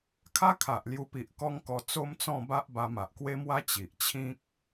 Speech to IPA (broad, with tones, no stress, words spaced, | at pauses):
kʰa˦kʰa˨ʔ lju˧pi˨ʔkɔ˦ŋkɔ˧ t͡so˦mt͡sɔ̃˥˧ba˦ʔ ba˧ma˨ʔkwe˦mwa˦ t͡ɕi˨ʔt͡ɕʰĩ˦k̚